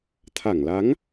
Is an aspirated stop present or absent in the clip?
present